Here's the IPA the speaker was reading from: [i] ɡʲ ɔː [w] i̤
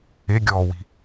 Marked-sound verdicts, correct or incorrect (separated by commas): incorrect, correct